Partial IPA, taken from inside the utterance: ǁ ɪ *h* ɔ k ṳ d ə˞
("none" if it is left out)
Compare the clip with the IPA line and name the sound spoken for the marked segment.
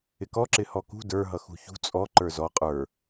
h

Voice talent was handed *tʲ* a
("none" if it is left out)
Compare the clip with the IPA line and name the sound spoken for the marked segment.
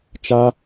t͡ʃ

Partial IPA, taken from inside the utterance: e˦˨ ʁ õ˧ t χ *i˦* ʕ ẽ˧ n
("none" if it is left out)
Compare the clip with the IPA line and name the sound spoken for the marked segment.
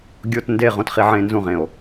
i˧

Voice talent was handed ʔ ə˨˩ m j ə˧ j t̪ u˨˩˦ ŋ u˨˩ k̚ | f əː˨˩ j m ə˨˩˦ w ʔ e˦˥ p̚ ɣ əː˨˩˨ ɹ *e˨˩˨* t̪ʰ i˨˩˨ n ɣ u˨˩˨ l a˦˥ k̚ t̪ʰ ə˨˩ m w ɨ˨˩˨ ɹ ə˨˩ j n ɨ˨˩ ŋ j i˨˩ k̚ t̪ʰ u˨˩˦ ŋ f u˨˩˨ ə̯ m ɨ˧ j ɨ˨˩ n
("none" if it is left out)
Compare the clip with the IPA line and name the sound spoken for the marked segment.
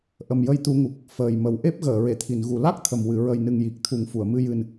e˨˩˨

